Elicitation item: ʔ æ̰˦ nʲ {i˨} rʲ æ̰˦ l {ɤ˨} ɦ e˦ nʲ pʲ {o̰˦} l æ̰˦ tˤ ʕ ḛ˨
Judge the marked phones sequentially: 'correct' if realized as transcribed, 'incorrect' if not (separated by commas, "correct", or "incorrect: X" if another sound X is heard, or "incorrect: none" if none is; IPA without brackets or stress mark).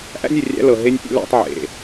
incorrect: e˨, correct, correct